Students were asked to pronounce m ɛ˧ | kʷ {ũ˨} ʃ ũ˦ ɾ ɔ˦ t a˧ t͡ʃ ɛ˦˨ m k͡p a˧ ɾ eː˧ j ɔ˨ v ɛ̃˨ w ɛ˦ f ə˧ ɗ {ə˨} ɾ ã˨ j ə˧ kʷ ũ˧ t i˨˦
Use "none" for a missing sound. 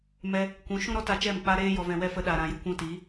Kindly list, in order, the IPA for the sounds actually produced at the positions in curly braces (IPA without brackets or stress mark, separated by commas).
ũ˨˦, a˨